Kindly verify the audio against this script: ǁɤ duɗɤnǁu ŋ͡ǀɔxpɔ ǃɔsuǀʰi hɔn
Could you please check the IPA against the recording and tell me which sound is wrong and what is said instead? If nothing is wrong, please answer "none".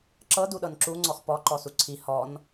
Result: none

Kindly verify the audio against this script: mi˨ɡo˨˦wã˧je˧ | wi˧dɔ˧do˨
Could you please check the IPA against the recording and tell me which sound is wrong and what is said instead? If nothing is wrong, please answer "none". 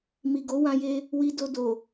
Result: ɔ˧ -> o˧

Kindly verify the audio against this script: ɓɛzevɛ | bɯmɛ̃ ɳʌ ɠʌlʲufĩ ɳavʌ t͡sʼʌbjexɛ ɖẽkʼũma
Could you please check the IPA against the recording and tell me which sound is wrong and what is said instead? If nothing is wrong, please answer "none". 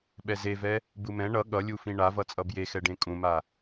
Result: none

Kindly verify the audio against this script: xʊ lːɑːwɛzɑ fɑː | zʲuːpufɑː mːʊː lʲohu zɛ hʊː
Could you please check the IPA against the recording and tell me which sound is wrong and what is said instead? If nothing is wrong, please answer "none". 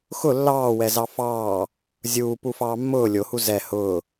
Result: none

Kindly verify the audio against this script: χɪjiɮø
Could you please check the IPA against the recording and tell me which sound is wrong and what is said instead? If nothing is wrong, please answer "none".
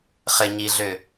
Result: j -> ɲ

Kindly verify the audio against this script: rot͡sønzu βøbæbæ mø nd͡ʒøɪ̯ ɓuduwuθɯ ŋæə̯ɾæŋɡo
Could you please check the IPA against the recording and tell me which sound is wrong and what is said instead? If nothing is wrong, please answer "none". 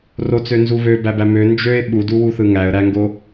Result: none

